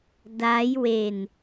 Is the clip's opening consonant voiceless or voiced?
voiced